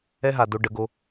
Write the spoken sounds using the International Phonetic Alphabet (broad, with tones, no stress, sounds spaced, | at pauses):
ɛ˦ ɦ a˨ d o˦ ɖ ə˨˦ ɡ o˦